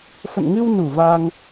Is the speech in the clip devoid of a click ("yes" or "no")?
yes